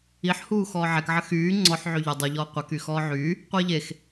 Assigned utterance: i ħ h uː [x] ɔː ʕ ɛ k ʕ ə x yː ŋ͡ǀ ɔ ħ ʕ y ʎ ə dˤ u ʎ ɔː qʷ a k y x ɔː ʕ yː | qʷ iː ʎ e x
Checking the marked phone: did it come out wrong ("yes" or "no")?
no